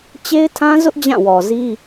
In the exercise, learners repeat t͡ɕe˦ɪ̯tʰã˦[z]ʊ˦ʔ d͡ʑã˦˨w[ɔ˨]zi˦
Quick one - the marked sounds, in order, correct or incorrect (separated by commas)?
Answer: correct, correct